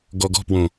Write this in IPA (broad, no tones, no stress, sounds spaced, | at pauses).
ɡ ɔ ɡ ɔ̤ p w õ